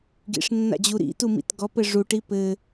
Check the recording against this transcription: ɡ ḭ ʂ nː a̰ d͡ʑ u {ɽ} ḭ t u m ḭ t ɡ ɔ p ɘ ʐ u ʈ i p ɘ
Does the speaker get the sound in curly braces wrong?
yes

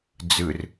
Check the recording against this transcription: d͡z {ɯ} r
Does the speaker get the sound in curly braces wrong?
no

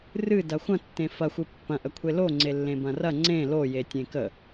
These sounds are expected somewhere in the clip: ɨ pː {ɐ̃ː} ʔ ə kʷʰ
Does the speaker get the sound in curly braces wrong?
yes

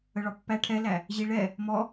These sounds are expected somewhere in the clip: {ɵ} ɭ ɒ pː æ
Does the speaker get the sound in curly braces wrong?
yes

